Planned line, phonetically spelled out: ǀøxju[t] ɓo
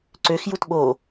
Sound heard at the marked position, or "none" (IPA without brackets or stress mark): t